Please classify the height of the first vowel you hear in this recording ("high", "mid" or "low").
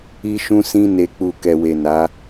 high